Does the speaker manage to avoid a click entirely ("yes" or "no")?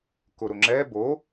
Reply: no